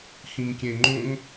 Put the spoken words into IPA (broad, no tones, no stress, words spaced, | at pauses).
xĩŋkʲẽŋ͡ǃõŋ